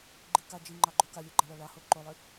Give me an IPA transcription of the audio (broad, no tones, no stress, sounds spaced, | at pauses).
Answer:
ɡ͡ǃ i k a d͡ʒ i ŋ͡ǃ ɑ ɡ͡ǃ o k a lʲ o ɡ͡ǃ a ɭ ɑ ɭ ɑ h o ǃ o lˠ i